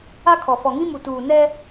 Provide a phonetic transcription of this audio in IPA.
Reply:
a˦ kʰ ɔ˨ f ɔ˨ ŋ ĩ˦ m u˨ t uː˨ n ɛ˦

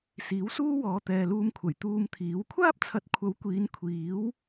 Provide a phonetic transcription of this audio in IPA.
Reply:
s iː˨˥ w s uː˥ w ɔː˨˧ t̪ ɛː˨ l uː˧ m kʷʰ ɐ˨˩ j t̪ uː˧ m t̪ʰ iː˨˥ w kʷʰ aː˥ p̚ t͡sʰ ɐ˨˥ t̚ kʷʰ ɐ˨˥ w kʷ iː˨˧ n kʷʰ iː˨˥ w

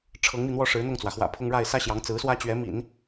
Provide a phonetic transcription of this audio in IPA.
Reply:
ʈ͡ʂʰ ɤ˧˥ ŋ m i˧ n̪ w ɔ˥ ʂ ɻ̩˧˥ n̪ ʊ˥˩ ŋ t͡s w ä˩ x w ä̰˨˩ pʰ ʊ˥ ŋ ɻ a˥˩ ɪ̯ s ä˥ ɕ j ɑ˧˥ ŋ t͡s ɹ̩˧˥ s w ä˥ t͡ɕ ɥ ɛ˧˥ m ḭ˨˩˦ n

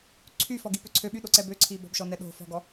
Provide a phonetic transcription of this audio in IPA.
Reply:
ǀʰ y f ɔ ɡ i p ø ǀʰ ø ɓ y ɗ o ǀ ɛ b ø ǀʰ i b ɔ̤ b ʃ ɔ n ɛ ɗ o̤ f ɔ̤ ɡ ɔ

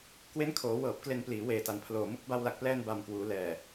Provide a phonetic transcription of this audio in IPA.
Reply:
k w e˦˥ n kʰ oː˩˦ w ɤː˨˩ p̚ k l e˧ n p l iː˩˦ w eː˨˩ t a˨˩ n pʰ l oː˨˩ m u˥˩ k̚ b a˧ w l a˨˩ k̚ p l ɛː˧ n b a˨˩ m k w uː˩˦ l ɛː˨˩

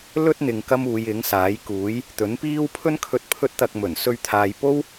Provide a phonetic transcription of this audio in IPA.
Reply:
l ɵ˥ t̚ n̪ ɪ˨ ŋ k ɐ˥ m uː˨˧ j ɪ˨˥ ŋ s aː˨˥ j k uː˨˥ j | t̪ ɵ˨˥ n p iː˥ w pʰ ɵ˥ n kʰ ɵ˧ t̚ pʰ ɵ˥ t̚ t̪ ɐ˧ k̚ m ɵ˨˩ n s ɵ˧ ɥ t̪ʰ aː˨ j p o˥ w

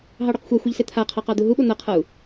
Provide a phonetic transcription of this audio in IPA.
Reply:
ɦ ɑ ɽ u q xʷ a xʷ e ʎ s e t̪ʰ a qʰ ɑ q ɑ d̪ u ɦ u ɓ o n̪ ʌ qʰ ʌ u̯

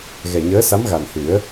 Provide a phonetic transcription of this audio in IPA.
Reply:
ɣ ɛ˨˩ ɲ əː˧˥ s a˧˥ m ɣ a˨˩ n h ɨ˨˩˦ ə̯

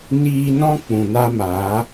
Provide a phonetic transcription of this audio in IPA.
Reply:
n iː˧ n ɔ̃˦ k͡p ũ˨ n a˦ m aː˨˦

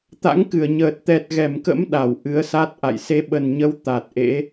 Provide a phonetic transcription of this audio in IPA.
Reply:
t̪ a̰˧˥ ŋ k ɨ˧˩ ə̯ ɲ əː˨˩ t̚ t̪ ɛ˨˩ t̚ ɣ ɛ˧˩ m k ə̰˧˥ m ɗ a˧˩ w ʔ ɨ˨˦ ə̯ s a˦˥ t̚ ʔ a̰˧˨ j s e˨˦ ɓ ə˨˩ n ɲ ə˨˦ w t̪ a˨˩ t̚ ʔ ḛ˧˥

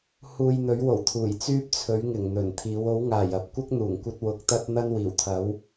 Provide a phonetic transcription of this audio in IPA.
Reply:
h uː˨ j n̪ ɵ˨˥ ɥ w o˨˩ w t̪ʰ uː˨˩ j t͡s yː˥ p̚ t͡sʰ ɵ˨˥ ɥ ŋ ɪ˨˩ ŋ n̪ ɵ˨˩ n t̪ʰ iː˨˥ w o˨˥ w ŋ aː˨˩ j ɐ˨ p̚ kʷ ɐ˥ k̚ n̪ uː˨˩ ŋ kʷ ɐ˧ t̚ w ʊ˨˥ k̚ t̪ ɐ˥ t̚ n̪ ɐ˥ n w iː˨˩ w t̪ʰ ɐ˨˥ w

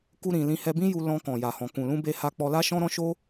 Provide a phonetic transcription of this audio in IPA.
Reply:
k u˧ ɾ ĩ˨ l ĩ˧ h ɛ˧ b ĩ˦ j u˧ l ɔ̃˧ k ɔ̃˨ j a˨ h ɔ̃˨ k ũ˨ l ũ˧ b e˧ h a˧ k͡p ɔ˧ l a˦ ʃ ɔ̃˦ ɾ ɔ̃˦ ʃ o˦

